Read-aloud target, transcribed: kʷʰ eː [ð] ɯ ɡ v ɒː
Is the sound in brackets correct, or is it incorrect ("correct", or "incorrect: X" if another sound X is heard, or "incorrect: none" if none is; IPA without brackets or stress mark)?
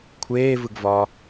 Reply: incorrect: v